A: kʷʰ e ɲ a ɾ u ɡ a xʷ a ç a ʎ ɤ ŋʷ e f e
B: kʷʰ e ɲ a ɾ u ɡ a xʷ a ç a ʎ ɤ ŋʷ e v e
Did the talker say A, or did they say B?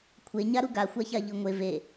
B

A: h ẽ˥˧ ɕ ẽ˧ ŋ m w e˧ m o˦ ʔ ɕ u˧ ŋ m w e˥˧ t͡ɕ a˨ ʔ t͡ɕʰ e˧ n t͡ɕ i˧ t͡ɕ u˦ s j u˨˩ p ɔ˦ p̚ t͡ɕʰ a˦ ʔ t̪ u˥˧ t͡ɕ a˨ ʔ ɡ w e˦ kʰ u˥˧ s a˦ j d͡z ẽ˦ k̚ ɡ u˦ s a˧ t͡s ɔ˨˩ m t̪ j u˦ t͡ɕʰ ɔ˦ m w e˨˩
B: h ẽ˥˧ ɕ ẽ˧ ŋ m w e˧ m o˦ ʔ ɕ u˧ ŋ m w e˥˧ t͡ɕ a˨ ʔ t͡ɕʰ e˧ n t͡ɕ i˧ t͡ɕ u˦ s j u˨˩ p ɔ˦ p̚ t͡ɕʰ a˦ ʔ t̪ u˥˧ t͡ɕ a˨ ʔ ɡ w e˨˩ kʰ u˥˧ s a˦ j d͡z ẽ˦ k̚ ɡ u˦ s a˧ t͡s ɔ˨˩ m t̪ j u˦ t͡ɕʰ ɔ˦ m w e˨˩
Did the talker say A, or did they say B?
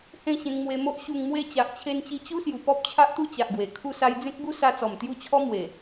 B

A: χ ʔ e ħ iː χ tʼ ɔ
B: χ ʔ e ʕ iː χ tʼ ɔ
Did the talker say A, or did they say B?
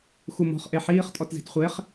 A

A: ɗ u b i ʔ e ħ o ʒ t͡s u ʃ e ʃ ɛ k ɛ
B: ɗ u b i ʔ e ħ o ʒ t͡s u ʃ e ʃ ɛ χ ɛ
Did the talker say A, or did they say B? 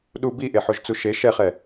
B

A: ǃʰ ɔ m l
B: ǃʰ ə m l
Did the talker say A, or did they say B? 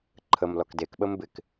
B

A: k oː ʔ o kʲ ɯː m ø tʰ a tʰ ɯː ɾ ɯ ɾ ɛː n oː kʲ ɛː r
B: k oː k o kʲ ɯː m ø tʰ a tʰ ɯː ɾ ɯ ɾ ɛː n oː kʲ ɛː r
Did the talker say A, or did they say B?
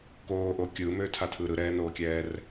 A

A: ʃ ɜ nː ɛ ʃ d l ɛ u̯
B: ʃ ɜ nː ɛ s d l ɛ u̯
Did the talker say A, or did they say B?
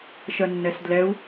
B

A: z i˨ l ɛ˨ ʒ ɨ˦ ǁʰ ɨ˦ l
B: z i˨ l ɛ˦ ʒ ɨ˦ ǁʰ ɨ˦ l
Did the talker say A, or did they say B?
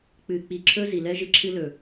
B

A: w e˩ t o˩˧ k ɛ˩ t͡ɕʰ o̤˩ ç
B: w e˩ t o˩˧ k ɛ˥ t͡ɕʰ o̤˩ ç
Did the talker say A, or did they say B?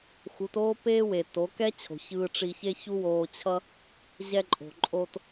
B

